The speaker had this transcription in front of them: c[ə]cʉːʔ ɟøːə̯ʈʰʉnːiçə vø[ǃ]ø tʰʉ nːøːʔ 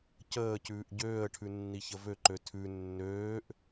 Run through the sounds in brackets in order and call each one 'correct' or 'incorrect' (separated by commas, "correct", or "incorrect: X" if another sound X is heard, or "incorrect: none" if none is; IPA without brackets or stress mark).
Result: incorrect: əː, correct